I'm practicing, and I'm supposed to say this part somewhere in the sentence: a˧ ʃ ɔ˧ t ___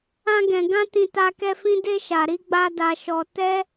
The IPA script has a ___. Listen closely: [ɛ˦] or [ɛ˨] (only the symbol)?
ɛ˦